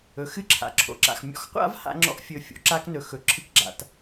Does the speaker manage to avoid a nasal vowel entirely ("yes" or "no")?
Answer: yes